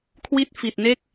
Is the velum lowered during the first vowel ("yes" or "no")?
no